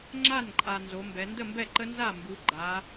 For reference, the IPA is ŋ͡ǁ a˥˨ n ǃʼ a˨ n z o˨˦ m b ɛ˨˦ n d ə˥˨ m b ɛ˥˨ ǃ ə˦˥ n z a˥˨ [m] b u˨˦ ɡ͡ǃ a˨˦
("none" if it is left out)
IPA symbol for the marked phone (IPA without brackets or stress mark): m